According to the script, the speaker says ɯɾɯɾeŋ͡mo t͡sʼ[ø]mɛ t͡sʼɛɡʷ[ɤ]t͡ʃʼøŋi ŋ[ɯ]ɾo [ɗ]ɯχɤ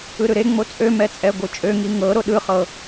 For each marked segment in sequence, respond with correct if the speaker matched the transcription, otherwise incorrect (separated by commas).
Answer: correct, incorrect, incorrect, correct